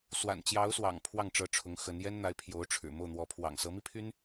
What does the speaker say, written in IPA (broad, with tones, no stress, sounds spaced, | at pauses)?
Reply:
s w a̰˨˩ n t͡ɕ j ɑ˧˥ ʊ̯ s w ɑ̰˨˩ ŋ pʰ w ɑ˥˩ ŋ ʈ͡ʂ ɤ˧˥ ʈ͡ʂʰ ʊ˧˥ ŋ x ə˧˥ n j ɛ˥ n n̪ a˧˥ ɪ̯ pʰ j o˧˥ ʊ̯ ʈ͡ʂʰ ɻ̩˨˩ m o˥˩ ʊ̯ n̪ w ɔ˧˥ pʰ w ɑ̰˨˩ ŋ s ɤ˧˥ m i˥ pʰ y˥ n